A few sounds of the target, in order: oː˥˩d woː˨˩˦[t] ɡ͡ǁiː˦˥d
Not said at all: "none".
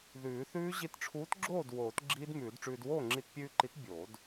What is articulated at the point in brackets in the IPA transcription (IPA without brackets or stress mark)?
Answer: t